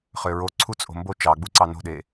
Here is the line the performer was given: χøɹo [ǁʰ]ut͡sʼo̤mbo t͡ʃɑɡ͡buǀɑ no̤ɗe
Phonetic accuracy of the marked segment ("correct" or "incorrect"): incorrect